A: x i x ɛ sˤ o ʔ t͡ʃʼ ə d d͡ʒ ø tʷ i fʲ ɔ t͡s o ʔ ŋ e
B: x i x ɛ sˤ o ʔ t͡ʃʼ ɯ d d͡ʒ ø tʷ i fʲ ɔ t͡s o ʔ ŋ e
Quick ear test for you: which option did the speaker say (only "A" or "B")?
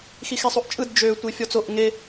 B